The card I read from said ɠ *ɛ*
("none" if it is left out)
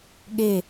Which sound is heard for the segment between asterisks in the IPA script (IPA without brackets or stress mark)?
e